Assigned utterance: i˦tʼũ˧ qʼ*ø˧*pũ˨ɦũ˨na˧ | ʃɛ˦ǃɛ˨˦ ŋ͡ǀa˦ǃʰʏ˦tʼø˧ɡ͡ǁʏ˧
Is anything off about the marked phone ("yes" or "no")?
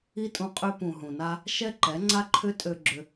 no